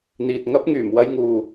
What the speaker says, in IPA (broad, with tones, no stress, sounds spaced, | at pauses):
n̪ iː˨ t̚ ŋ ɐ˥ p̚ ŋ yː˨˩ m w ɐ˧ j ŋ uː˨